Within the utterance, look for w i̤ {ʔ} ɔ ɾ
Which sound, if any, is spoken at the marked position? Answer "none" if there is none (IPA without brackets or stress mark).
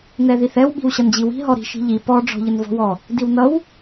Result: ɦ